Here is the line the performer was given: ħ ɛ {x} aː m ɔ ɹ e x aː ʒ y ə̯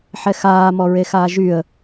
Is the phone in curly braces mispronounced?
no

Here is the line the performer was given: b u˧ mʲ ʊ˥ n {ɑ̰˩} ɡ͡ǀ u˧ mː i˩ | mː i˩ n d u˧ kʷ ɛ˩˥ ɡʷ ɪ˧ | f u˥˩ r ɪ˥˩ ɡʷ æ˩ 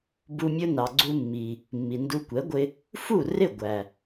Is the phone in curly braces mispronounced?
yes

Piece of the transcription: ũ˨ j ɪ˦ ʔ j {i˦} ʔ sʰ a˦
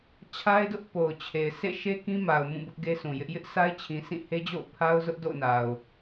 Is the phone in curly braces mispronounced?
yes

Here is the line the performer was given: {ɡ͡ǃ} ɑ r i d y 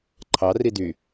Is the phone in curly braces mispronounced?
yes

